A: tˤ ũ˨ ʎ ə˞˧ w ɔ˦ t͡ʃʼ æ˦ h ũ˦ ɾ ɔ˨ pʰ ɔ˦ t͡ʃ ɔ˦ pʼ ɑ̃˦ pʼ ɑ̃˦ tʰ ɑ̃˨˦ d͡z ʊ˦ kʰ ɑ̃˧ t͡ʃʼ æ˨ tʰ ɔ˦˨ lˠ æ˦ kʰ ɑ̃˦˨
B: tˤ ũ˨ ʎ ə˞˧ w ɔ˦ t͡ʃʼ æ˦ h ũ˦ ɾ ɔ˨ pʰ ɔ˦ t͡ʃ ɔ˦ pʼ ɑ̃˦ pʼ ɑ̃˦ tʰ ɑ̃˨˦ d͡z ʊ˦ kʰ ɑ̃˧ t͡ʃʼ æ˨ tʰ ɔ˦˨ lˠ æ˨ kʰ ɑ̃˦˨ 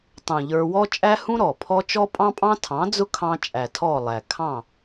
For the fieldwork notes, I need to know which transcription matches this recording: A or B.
B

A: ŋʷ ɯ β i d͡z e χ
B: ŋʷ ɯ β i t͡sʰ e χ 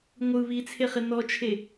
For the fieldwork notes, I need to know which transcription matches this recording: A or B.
B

